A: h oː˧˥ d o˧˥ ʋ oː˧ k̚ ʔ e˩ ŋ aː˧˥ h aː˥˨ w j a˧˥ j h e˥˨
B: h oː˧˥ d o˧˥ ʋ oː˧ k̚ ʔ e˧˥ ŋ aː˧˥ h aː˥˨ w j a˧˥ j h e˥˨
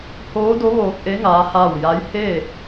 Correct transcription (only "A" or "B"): B